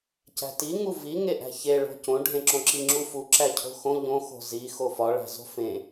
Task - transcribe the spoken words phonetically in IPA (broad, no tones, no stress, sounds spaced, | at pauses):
c æ̤ t i ŋ u v i ŋ e ʔ æ̤ ç e ɭ o̤ c õ ɖʱ ẽ ǁ õ ǁ i ŋ͡ǁ u f u ǁ æ cʰ o̤ x õ ʎ õ x o̤ z i x o f ɒ ɭ æ̤ z o̤ f ẽ